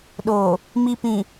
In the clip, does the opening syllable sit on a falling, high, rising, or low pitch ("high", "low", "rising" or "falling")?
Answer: low